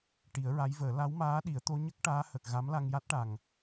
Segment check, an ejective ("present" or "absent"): absent